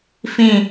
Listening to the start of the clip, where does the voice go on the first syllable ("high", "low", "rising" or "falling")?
falling